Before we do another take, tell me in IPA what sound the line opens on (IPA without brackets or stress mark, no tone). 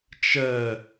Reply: t͡ʃ